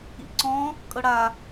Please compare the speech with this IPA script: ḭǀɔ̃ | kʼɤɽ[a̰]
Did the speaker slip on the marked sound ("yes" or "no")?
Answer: yes